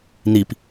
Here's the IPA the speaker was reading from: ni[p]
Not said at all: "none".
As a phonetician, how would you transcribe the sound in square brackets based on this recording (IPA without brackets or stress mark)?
p